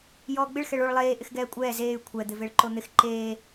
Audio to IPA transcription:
j ɔː ɡ͡b ɪ ɭ x ɛ ɭ o ɭ lˠ eː ʔ ɪ x ɡ ɛː kʷʼ ɛː z eː y̯ kʷʰ ɛ d̪ ɪ v e ɭ ǃ o n̪ ɪ x ǃ eː

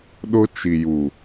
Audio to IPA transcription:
ɗ ʊ˦ t͡ʃ i˨ j u˨

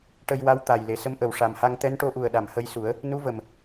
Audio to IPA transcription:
ʈ ə˧ j w a˧˥ w t̪ a˨˩ j l e˨˩ s ə˧˥ m ʔ ə˨˩ w ʂ a˨˩ m h a˧ ŋ t̪ ɛ˧˥ n ʈ o˧˥ ʔ u˨˩ ə̯ ɗ a˨˩˨ m h ə˧ j s u˨˩˦ ə̯ | n u˧˥ v ə˨˩ m

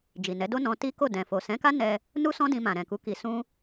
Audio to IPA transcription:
d͡ʒ i˨ n ɛ˨˦ d o˦ n ɔ̃˧ t i˦ k o˦˨ d ɛ̃˨ f o˨ s ɛ̃˨˦ k a˦ n ɛ˧ | n u˦ s ɔ̃˦ d ĩ˧ m ã˨ ɾ ɛ̃˨ k u˨˦ k i˧ s ũ˦

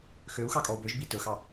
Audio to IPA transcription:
x ø u̯ x ɑ kʼ ɔ u̯ b ø ʒ b i t ɵ x ɑ

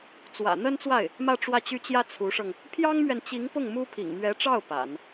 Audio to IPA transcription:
t͡s w ä̰˨˩ n̪ ə˥ n t͡s w a˥˩ ɪ̯ | m ä˥˧ ʈ͡ʂ w ä˥˩ t͡ɕ y˥ t͡ɕ j ä˥ t͡sʰ u˧˥ ʂ ɤ˧ ŋ | pʰ j ɑ˥ ŋ m ɥ ɛ˨ n t͡ɕ i˧˥ ŋ p ʊ˥˩ ŋ m u˥ pʰ ḭ˨˩ ŋ m ɥ ɛ˧˥ ʈ͡ʂ ɑ˥˩ ʊ̯ p a̰˨˩˦ n

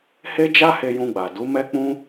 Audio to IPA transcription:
h e˦ d͡ʒ a˦ h e˧ j ũ˧ ɡ͡b a˨ d u˨˦ m ɛ˦ k͡p ũ˦

